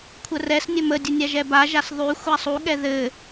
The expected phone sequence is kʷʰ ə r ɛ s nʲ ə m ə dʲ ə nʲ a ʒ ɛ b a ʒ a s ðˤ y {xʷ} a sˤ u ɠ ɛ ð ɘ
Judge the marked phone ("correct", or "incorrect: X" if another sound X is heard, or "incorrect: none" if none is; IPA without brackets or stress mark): correct